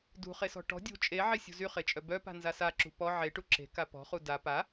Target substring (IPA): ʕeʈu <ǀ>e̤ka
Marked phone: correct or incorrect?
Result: incorrect